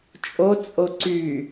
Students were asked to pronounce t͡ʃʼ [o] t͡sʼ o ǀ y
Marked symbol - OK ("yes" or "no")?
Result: yes